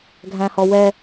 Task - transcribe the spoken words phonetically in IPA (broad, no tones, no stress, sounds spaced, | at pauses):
ɡʱ æ̃ h ɔ w ɛ